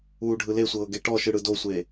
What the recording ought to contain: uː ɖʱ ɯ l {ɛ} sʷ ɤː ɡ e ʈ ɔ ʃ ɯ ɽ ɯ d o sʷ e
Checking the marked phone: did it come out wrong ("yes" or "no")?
yes